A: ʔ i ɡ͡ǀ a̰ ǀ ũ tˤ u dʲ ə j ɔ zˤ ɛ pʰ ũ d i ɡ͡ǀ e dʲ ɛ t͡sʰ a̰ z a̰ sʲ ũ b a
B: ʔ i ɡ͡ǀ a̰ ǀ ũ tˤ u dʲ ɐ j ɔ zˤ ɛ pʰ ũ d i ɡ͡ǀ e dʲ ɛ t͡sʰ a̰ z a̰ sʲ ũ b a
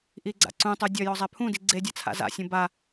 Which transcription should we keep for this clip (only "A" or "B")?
B